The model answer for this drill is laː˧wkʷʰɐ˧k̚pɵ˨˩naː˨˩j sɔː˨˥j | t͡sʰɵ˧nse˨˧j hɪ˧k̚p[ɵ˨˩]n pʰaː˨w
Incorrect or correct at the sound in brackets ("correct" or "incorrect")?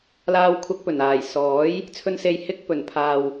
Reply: correct